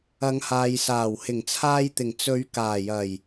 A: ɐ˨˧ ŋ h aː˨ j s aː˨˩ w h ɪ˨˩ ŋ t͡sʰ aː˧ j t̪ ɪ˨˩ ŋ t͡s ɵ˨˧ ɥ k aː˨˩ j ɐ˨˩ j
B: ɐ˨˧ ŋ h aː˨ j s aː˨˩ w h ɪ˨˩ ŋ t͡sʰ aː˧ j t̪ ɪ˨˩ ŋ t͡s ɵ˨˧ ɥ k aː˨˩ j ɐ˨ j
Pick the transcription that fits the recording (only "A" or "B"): A